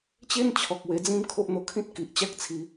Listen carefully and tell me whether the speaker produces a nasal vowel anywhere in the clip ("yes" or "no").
yes